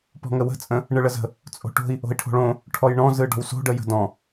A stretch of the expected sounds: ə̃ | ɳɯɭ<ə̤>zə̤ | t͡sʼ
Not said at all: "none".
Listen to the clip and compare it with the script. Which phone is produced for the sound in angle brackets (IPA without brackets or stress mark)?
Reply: ə